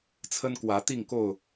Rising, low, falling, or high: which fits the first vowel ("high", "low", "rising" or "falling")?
high